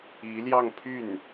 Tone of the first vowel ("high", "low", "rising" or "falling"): rising